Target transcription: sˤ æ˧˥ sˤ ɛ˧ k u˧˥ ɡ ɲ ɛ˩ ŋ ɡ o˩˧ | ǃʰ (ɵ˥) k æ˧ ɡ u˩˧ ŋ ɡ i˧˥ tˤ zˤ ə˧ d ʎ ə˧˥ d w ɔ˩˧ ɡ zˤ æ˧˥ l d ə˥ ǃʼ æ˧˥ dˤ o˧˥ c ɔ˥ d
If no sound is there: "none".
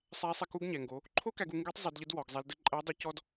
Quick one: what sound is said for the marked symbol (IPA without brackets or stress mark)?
o˥